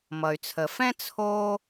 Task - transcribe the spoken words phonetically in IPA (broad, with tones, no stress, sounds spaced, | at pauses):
m ʌ˩ y̯ t͡sʰ ə˩ f ɛ̃˥ t͡sʰ o˥